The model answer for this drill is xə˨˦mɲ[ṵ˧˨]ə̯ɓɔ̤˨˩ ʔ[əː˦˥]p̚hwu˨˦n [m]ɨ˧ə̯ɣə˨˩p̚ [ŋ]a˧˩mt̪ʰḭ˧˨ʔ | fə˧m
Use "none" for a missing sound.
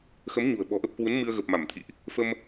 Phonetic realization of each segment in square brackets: ṳ˨˩, ə˦˥, m, m

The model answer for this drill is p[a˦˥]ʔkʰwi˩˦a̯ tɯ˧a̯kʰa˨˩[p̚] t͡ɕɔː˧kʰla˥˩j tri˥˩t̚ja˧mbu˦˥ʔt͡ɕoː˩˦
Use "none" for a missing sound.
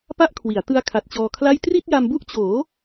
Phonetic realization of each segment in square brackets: a˥˩, t̚

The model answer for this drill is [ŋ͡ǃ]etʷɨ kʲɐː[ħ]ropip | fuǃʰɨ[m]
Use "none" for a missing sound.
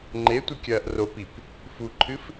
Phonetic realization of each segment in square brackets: ŋ͡ǃ, ʔ, f

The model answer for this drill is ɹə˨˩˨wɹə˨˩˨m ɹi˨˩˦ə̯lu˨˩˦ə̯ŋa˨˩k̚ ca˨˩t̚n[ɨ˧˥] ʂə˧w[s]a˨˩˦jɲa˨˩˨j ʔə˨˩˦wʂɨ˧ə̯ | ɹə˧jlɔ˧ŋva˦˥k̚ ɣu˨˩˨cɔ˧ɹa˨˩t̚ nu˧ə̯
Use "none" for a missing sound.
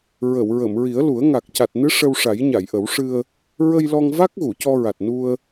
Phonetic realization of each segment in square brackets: ɨ˧˥, ʂ

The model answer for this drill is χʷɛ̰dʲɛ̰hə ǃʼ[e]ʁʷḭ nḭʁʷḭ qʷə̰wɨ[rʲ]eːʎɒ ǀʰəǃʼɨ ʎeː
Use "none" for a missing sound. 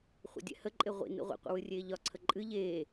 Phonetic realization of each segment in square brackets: e, rʲ

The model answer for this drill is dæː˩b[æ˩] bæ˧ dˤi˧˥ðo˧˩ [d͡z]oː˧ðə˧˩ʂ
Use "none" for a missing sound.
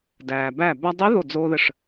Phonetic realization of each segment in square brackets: æ˧˩, d͡z

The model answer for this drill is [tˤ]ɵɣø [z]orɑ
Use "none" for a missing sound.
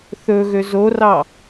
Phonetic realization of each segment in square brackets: θ, z

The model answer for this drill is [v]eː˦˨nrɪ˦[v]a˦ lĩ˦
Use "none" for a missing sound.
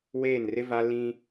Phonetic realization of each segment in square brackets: w, v

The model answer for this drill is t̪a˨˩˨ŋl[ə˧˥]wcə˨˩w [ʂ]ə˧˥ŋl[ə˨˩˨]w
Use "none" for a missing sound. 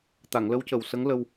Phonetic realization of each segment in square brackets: ə˧˥, s, ə˧

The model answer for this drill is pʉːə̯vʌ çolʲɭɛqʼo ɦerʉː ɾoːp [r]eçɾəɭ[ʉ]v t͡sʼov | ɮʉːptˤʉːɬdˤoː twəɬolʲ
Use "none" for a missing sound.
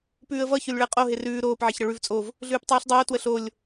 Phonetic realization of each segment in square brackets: ʕ, ʉ

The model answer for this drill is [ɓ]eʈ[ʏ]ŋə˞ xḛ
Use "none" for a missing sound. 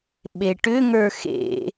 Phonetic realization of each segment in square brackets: ɓ, ʏ

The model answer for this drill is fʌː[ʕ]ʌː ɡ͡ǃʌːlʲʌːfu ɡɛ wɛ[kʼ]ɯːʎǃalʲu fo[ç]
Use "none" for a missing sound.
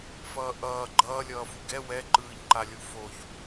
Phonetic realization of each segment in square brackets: ʔ, ǃ, ç

